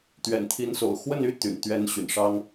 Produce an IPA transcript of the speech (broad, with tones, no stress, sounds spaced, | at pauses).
t̪ ɥ ɛ̰˨˩ n t̪ʰ i˧˥ n s o̰˨˩ ʊ̯ x w ə˥˩ n y˥ t̪ y̰˨˩ n t̪ ɥ ɛ˥ n ɕ y̰˨˩ n ʂ ɑ˥ ŋ